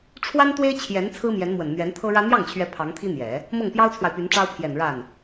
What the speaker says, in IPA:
ʈ͡ʂʰ w a˥ n t̪ w e˥ ɪ̯ t͡ɕʰ j ɛ˧˥ n t͡sʰ ɹ̩˥ m j ɛ˧˥ n m w ə˨˩ n n̪ ɥ ɛ˧˥ n t̪ʰ ɤ˥ ɻ ä˥ n̪ j ɑ˥˩ ŋ t͡ɕʰ ɥ ɛ˧˥ pʰ ɑ˧˥ ŋ t̪ʰ i˥ n̪ j ɛ˨˩˦ | m ɤ˥˩ ŋ p j ɑ˥ ʊ̯ t͡sʰ w a˨ ɪ̯ p y˧˥ n ʈ͡ʂ ɑ˥ ʊ̯ pʰ j ɛ˨˩ n ɻ a˥˩ n

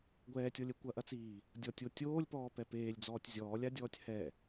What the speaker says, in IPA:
ɡʷ ɛː tʲ ɔ lʲ ɛ kʷ ɐ ʔ ɐ t͡s iː | dʲ ɔ tʲ o tʲ oː lʲ p ɔː p ɛ p eː lʲ d͡z ɔː tʲ zʲ ɔː lʲ a dʲ ɔː tʲ h ɛ

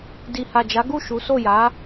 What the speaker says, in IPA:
d i˨ h a˨ d͡ʒ a˨˦ ɡ u˦˨ ʃ u˨˦ s o˦˨ j a˨˦

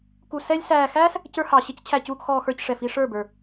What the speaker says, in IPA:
k u˨ s ɛ˧ lʲ s æː˨ x æː˦ s | c ə˞˧ h ɑ˨ ɕ ɪ˧ c t͡ɕʰ æ˨ c uː˨ k x ɔː˨ x ə˞˨ c ʂ ɛ˨ f i˧ ʂ ə˞˦˨ b ə˞˨

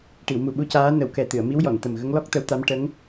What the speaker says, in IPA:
ʈ i˨˩˨ w m u˨˩ ɓ u˧ c aː˧˥ n ə˨˩˦ w k ɛ˨˩ t̪ ɨ˨˩˨ ə̯ m i˧˥ w j ɔ˨˩˨ n t̪ ə˨˩ m ɣ ə˧˥ ŋ l ɔ˦˥ k̚ t̪ ə˧˥ w t̪ a˧˥ m ʈ ə˧˥ ŋ

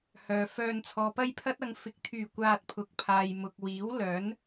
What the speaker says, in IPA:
h œː˨ f œː˧ n t͡sʰ ɔː˨ p ɐ˥ j pʰ ɐ˥ t̚ ɐ˨˧ ŋ f ɪ˨˥ k̚ t̪ʰ yː˨˩ kʷ aː˧ t̚ pʰ ʊ˨˥ k̚ pʰ aː˨ j m ʊ˨ k̚ w iː˨˥ w l œː˨˥ n

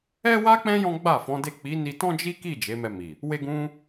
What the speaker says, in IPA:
ɛ˦ w a˦ k͡p ɛ̃˦ j ɔ̃˦ ɡ͡b a˦˨ f ɔ̃˨˦ d e˦˨ k͡p i˨˦ n i˧ t ɔ̃˦ d͡ʒ i˦ k i˦˨ d͡ʒ e˨˦ m ɛ˧ m i˨ | w e˧ ɡ ũ˧

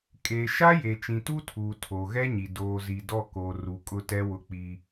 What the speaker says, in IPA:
kʼ e˨ ʃ a˦ j e˨ t͡ʃ ĩ˨ t u˦ tʰ uː˨ tʰ o˨ ɣ ɛ˦ ɲ i˨ d oː˨ z i˨ d ɔ˦˨ k o˨ r u˨ kʼ ʊ˦ t ɛ˦ w ʊ˦ k͡p i˦

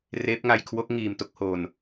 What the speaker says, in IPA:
r eː˦˥ p̚ ŋ a˧ j kʰ w o˦˥ k̚ ŋ iː˧ m t o˥˩ k̚ h oː˧ n

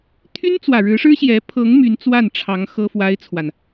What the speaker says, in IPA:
t̪ʰ y˥ n t͡s w ä˨˩ ɻ ɻ̩˧˥ ʂ ɻ̩˥ ɕ j ɛ˧˥ pʰ ɤ˧˥ ŋ m y˧˥ n t͡s w a˥˩ n ʈ͡ʂʰ ɑ˧˥ ŋ x ɤ˥ f w a˥ ɪ̯ t͡sʰ w a˨ n

